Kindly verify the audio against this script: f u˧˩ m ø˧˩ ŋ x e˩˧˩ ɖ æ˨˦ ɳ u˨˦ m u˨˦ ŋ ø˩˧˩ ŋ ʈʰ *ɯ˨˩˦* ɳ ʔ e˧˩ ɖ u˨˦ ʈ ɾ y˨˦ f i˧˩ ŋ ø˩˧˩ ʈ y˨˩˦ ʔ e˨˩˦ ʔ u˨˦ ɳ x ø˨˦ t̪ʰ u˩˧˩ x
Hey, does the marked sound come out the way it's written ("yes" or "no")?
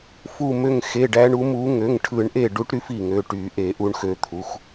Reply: yes